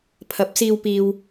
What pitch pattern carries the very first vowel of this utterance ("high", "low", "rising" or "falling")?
rising